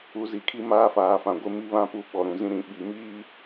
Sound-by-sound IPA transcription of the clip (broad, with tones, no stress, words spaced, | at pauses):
u˨˦zi˨kʰi˦ maː˦faː˨fã˨ ɡʷɪ˦mi˦βã˦pu˦˨ ɓɔ˨ɾũ˨zĩ˦ ɾĩ˨ɓi˨miː˦